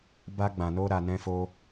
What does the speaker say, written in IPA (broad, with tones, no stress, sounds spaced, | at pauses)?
b a˧ ɡ͡b ã˨ n o˧ ɾ a˧ n ɛ̃˦ f o˦